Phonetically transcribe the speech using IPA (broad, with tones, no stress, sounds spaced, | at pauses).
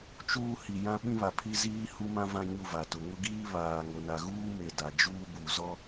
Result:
t͡ʃ uː˦ h i˨ j ã˦ ɓ ĩ˦ β a˨ pʰ i˦ z iː˦ h u˦ m ã˦ v ã˦ ɲ u˦˨ v a˨ t ʊ˨ ŋ ʊ˦ ɡ iː˦ β aː˨ ŋ o˨ n a˨ ɣ uː˦ m e˨ d a˨ d͡ʒ uː˦ b u˨ z ɔ˦